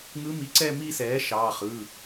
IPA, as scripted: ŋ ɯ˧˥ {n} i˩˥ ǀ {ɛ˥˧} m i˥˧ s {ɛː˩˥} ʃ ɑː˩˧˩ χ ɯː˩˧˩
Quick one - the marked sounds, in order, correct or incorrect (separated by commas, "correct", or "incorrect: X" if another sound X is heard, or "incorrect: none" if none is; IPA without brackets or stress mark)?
incorrect: m, correct, correct